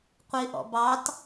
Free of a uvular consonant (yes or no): no